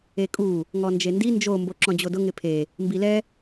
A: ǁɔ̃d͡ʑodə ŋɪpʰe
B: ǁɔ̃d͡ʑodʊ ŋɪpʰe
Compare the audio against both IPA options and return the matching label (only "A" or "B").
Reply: B